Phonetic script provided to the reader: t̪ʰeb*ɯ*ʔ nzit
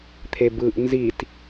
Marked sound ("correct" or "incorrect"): correct